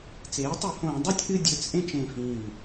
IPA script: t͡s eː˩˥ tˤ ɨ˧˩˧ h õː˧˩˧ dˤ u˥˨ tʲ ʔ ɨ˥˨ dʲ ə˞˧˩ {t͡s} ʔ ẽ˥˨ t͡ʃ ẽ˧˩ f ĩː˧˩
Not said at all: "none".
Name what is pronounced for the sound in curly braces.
t͡s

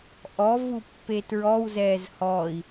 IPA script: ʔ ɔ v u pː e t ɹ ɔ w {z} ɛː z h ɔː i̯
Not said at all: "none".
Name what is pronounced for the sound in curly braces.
z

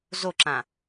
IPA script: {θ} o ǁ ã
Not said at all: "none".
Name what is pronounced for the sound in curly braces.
z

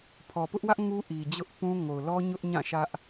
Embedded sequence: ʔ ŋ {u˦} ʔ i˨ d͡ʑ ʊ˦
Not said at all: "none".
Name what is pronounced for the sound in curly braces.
u˦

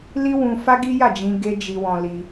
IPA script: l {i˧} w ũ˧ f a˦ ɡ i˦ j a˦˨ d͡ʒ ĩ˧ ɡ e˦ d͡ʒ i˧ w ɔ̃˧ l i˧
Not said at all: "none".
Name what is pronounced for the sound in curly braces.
i˦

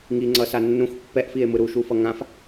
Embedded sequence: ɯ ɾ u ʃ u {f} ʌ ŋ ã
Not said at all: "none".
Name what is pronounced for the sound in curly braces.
f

